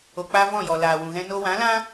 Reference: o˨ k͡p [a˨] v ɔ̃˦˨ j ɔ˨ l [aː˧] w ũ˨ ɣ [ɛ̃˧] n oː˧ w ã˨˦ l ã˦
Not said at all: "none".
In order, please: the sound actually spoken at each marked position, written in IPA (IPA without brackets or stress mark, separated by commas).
a˧, aː˨, ɛ̃˧